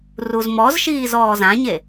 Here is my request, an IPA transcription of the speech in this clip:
r u z m ɔ z ʃ iː z ɔː z ã ɲ e

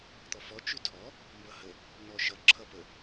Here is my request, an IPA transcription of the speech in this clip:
t̪ ɔ f ɔ t͡ʃ ʉ tʰ ɔ | m b ʌ h ə | n ɔ ʃ ʌ ǁʰ ʌ p ə

